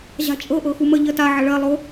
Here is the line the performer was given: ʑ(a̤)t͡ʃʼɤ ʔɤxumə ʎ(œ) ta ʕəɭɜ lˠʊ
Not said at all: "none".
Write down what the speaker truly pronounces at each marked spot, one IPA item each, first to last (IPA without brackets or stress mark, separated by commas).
a̤, ə